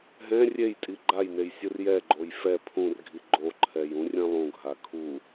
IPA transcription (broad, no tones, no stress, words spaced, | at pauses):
ɦɛ̃ rʲejtʼi ɡ͡ǃajnej sʲɯrjɛɡ͡ǃoj fɛ pʰũrɡʱi ɡ͡ǃoǃʰɛj ũrʲɛ̃lˠũɡʱa kʰu